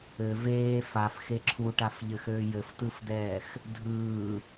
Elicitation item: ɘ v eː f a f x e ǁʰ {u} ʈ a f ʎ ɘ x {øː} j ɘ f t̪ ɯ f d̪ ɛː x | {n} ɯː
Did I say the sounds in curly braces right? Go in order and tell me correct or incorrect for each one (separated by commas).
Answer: correct, correct, incorrect